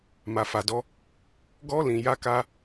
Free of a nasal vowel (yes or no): no